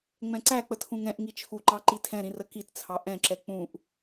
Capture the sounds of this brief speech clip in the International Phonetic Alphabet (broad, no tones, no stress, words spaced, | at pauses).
ŋ͡mɛ̃ǀæ k͡pətʰũŋɛ̃ʔ ŋit͡ʃʰuǃɑ ǃitʰɛ̃ɾĩ rəkitt͡sʰɑ ʔɛ̃ǁɛ k͡pũʔ